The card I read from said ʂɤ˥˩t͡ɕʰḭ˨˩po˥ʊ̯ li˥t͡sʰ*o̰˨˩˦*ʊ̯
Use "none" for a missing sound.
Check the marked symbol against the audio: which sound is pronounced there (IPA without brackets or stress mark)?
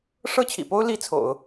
o̰˨˩˦